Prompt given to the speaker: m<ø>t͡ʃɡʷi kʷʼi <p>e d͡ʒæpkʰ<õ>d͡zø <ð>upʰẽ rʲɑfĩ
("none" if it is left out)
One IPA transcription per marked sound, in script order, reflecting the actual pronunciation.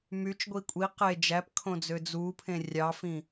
y, q, õ, d͡z

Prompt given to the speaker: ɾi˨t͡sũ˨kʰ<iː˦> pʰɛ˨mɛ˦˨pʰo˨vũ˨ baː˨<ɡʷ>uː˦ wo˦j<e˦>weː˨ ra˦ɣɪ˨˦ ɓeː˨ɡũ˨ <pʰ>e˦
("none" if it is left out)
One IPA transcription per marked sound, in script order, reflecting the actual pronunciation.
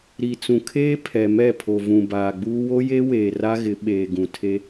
eː˦, ɡ͡b, e˦, tʰ

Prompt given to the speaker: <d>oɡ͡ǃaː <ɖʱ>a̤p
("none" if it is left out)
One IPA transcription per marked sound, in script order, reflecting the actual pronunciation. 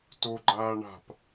t, ɳ

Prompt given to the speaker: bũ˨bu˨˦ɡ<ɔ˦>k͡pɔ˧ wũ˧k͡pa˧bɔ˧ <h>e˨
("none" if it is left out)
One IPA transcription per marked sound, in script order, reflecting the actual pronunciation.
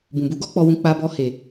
ɔ˦, h

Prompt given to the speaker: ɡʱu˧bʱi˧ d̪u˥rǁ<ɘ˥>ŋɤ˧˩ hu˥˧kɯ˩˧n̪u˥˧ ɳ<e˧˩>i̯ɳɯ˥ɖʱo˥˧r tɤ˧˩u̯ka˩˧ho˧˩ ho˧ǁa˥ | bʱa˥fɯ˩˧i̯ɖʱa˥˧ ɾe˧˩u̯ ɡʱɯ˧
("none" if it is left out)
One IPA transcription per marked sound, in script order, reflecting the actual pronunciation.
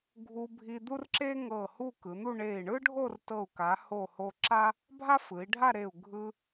e˥, e˧˩

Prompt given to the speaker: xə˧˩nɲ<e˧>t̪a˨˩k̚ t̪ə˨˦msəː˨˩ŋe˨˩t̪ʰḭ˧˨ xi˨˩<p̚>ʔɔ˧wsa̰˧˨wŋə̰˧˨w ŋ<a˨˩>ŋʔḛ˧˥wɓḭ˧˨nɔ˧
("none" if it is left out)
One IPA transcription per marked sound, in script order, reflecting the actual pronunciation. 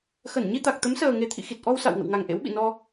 i˧, t̚, a˨˩

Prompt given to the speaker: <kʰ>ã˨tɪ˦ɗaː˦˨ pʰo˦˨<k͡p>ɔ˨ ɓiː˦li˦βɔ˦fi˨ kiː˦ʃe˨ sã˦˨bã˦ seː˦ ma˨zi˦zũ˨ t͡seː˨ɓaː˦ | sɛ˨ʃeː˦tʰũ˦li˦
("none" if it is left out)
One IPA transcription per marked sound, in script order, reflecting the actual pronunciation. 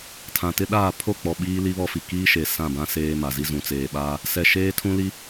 tʰ, k͡p

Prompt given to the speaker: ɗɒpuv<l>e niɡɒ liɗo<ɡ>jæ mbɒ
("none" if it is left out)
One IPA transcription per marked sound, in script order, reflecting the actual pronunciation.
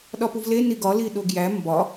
l, ɡ

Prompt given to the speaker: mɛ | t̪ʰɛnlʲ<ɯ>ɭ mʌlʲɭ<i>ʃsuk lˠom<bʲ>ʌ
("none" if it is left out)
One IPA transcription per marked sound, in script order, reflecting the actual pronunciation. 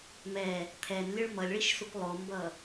ɯ, i, b

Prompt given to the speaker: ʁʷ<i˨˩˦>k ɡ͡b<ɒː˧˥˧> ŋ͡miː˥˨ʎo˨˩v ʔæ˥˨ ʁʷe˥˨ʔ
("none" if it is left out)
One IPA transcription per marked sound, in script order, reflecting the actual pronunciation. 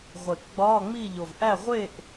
e˨˩˦, ɒː˧˥˧

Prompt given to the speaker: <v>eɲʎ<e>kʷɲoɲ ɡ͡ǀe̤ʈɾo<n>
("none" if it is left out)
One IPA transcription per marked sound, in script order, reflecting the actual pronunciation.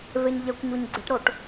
v, ɛ, ʈ

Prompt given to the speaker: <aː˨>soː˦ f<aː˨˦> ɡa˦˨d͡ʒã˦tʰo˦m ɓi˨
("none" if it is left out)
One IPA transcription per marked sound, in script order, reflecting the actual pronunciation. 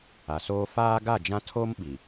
a˨, aː˦

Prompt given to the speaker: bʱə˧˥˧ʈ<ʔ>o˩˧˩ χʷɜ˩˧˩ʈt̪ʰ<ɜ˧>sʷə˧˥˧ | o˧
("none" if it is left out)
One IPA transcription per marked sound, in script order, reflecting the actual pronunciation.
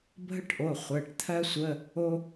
ʔ, ɜ˥

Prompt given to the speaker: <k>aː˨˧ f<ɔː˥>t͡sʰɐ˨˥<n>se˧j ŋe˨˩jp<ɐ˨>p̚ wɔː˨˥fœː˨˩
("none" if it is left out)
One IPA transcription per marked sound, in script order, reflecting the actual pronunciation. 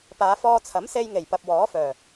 p, ɔː˧, m, ɐ˨

